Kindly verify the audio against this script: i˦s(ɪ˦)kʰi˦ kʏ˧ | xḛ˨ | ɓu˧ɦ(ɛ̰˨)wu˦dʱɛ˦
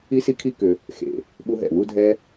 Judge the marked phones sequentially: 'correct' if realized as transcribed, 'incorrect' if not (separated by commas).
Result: incorrect, correct